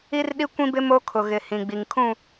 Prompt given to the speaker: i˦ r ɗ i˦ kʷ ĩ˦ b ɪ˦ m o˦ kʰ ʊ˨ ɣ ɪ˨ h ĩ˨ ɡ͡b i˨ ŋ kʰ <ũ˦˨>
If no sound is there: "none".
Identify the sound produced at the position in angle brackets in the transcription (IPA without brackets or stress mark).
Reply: ũ˦˨